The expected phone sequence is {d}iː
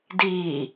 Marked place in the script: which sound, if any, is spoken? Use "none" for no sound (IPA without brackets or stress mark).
d